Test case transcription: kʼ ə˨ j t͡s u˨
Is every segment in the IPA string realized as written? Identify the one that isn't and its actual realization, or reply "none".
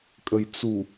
none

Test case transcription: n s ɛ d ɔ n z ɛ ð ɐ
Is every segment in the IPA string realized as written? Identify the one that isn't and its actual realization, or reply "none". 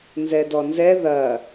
s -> z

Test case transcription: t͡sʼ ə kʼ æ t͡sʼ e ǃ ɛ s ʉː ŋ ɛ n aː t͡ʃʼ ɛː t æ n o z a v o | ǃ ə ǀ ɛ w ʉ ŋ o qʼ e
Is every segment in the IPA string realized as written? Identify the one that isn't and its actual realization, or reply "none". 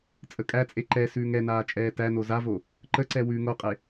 none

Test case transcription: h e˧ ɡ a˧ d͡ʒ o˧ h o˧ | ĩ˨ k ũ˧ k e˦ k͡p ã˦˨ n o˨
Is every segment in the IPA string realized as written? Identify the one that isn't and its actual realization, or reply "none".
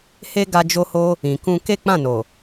none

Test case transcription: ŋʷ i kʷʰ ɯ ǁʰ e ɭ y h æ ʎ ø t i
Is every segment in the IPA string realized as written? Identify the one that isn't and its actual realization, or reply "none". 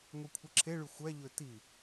h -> xʷ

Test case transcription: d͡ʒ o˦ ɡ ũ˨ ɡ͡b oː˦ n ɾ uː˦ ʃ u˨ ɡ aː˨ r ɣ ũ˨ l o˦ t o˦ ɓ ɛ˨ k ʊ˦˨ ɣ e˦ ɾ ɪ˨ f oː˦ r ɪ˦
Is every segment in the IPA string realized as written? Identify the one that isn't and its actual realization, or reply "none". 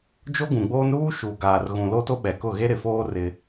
none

